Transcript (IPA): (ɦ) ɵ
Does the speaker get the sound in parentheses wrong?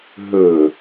no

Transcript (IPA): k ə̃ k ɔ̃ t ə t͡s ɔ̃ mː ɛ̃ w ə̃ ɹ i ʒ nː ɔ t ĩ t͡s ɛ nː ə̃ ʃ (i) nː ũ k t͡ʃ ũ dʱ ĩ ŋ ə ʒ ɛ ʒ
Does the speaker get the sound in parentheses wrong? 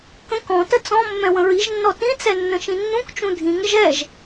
yes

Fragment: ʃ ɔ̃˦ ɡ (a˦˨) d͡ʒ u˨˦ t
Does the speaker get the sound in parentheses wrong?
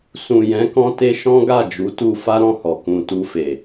no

